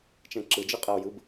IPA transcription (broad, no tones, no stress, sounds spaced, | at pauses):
t͡ʃ ɛ̃ ǁ ɯ d͡ʒ ɯ qʼ ɛ ʊ̯ j ɯ b